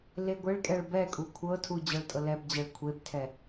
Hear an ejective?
yes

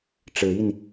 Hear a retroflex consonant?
yes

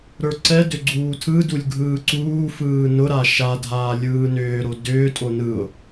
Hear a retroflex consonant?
no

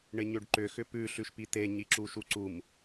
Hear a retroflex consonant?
yes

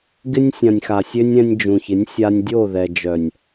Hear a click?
no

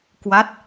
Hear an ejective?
no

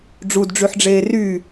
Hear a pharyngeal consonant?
yes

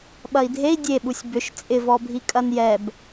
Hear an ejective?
yes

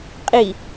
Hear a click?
no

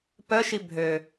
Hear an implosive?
no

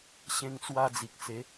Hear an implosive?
no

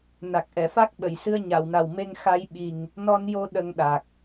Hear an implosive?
yes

